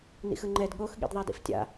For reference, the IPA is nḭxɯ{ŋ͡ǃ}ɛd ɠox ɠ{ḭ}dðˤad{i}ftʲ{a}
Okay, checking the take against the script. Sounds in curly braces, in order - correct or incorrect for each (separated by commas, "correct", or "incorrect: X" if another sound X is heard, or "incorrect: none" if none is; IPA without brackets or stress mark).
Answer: correct, correct, incorrect: ḭ, incorrect: a̰